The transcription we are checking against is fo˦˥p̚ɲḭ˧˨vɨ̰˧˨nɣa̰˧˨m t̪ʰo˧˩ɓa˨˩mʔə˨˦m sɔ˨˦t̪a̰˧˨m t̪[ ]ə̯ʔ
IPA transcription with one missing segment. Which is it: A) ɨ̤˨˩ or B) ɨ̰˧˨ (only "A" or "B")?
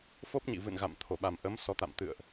B